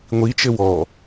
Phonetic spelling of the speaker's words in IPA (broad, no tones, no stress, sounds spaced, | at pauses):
ŋʷ i t͡ʃ ɘ w ɔ